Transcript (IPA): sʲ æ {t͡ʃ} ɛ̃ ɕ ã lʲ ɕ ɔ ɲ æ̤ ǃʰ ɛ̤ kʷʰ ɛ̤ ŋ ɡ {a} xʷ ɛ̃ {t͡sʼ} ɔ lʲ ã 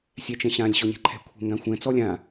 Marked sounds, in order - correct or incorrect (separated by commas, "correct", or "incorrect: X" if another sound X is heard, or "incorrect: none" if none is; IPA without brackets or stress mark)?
correct, incorrect: ã, incorrect: t͡s